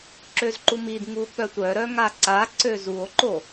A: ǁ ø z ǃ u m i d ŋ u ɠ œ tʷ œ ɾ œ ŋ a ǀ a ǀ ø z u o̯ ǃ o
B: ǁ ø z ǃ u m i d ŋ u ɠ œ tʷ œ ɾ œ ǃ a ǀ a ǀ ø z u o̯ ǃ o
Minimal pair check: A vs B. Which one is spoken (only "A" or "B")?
A